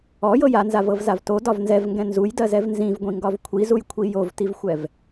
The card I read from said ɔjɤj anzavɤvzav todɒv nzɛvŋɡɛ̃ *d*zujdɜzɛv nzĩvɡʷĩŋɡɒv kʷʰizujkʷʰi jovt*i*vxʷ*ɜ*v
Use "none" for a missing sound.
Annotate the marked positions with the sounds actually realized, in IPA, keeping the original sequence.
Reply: n, i, ɛ

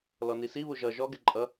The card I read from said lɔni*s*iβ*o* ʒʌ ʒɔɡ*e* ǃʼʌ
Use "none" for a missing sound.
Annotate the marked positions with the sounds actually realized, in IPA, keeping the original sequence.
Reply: s, u, ɛ

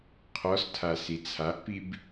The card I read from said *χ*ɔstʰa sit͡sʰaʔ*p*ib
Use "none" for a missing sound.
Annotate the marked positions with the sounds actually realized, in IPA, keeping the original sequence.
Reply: qʰ, p

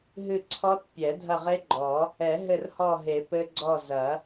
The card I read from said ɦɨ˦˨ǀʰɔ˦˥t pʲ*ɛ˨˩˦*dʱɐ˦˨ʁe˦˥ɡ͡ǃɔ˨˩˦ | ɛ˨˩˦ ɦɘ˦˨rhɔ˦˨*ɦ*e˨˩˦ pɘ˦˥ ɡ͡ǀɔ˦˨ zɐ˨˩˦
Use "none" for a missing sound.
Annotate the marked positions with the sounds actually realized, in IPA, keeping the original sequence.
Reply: ɛ˨˩˦, ɦ

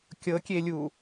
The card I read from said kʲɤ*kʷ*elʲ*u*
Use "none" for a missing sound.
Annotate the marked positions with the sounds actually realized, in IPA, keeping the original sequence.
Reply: kʲ, u

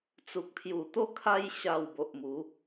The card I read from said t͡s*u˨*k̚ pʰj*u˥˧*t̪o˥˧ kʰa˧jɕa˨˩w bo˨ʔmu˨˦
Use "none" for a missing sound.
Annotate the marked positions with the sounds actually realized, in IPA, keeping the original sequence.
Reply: u˨, u˨˩

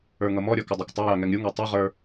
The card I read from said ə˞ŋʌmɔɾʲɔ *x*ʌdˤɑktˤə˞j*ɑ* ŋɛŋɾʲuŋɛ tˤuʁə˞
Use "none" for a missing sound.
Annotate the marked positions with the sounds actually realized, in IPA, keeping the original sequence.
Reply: k, ɑ

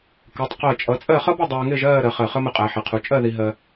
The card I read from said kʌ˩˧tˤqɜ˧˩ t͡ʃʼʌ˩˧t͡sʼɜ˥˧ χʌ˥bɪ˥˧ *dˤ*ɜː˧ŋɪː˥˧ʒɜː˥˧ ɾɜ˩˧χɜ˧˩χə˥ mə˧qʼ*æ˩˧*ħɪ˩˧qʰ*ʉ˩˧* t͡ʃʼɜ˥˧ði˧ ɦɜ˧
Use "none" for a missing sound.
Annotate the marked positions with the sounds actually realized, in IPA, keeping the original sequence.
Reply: dˤ, æ˩˧, u˩˧

